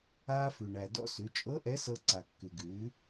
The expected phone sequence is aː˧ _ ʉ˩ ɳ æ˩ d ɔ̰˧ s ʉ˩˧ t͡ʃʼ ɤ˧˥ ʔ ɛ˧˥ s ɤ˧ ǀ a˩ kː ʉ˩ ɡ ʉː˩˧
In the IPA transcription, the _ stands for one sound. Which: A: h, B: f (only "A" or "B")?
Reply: B